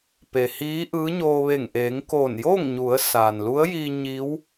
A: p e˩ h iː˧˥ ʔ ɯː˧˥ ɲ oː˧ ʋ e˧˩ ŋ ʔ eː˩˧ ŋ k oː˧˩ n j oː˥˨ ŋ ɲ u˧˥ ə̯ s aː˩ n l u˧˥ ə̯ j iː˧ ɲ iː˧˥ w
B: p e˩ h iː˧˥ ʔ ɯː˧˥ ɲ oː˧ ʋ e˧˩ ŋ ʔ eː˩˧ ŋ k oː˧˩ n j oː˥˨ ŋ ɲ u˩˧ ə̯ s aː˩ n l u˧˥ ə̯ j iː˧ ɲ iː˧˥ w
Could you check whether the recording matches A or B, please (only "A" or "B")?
B